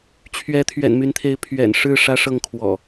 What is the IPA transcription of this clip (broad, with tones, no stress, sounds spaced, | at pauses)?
t͡ɕʰ ɥ ɛ˨˦ t̪ʰ ɥ ɛ̰˨˩ n m y˨˦ n t̪ʰ e˨˦ ɪ̯ pʰ ɥ ɛ̰˨˩ n ʂ ɻ̩˥˨ ʂ ä˦ ʂ ɤ˥˨ ŋ kʰ w ɔ̰˨˩